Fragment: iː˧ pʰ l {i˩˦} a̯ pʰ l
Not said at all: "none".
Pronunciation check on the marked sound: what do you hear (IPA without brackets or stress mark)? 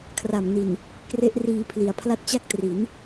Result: i˩˦